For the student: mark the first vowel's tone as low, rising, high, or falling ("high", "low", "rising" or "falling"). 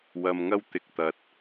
low